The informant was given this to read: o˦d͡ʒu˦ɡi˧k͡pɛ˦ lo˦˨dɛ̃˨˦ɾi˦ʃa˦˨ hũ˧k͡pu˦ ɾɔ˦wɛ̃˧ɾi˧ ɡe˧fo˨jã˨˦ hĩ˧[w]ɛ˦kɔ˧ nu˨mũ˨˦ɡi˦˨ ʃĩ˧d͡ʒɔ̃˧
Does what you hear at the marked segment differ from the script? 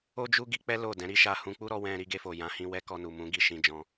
no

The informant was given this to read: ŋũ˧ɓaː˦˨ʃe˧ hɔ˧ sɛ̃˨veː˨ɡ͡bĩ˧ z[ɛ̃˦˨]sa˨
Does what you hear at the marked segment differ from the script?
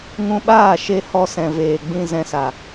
yes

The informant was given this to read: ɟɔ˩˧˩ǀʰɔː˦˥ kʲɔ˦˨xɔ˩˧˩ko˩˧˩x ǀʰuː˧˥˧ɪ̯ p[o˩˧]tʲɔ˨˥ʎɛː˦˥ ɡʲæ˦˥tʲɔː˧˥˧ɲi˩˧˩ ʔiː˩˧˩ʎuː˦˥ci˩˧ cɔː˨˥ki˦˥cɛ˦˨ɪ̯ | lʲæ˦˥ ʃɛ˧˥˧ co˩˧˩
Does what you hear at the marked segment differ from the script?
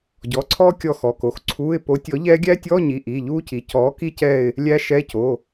yes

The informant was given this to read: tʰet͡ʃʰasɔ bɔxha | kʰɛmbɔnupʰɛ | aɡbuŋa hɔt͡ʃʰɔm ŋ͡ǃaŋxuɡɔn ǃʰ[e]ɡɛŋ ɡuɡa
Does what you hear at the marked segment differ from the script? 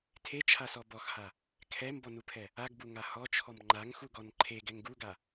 no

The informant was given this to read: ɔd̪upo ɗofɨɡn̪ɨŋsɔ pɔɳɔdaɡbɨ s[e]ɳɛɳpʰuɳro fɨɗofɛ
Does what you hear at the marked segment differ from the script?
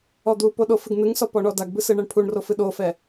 yes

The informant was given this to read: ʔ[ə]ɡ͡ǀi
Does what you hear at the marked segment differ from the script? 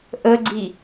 no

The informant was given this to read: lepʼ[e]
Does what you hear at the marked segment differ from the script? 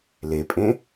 yes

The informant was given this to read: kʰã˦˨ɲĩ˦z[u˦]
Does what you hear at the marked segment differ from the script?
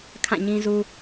no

